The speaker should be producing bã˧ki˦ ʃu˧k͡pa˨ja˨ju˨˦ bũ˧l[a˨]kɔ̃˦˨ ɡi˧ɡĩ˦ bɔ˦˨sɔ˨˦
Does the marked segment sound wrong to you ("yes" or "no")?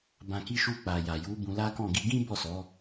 yes